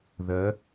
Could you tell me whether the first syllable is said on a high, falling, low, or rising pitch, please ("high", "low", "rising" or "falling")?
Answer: rising